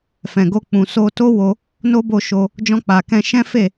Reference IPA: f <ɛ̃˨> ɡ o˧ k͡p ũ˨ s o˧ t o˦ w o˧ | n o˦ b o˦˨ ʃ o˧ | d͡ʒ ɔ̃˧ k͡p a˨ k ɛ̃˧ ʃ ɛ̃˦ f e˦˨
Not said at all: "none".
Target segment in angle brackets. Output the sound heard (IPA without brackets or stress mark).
ɛ̃˨